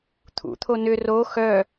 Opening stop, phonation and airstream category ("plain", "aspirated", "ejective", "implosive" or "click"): aspirated